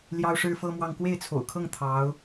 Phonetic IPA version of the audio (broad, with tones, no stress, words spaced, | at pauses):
ljɑ˥ʊ̯ʂɻ̩˥fɤ˥mwɑ˥˧ŋ kwe˥˩ɪ̯t͡sʰo̰˨˩ʊ̯kʰɤ˥˩ŋ t̪ʰɑ˧˥ʊ̯